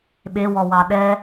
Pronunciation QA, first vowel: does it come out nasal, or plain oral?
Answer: oral